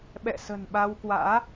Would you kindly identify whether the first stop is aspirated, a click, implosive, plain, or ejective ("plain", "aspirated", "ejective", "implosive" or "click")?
implosive